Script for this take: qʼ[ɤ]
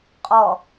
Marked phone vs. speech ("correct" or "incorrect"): incorrect